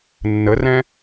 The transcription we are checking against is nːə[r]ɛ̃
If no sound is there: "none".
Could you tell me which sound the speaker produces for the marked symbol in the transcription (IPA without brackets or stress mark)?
r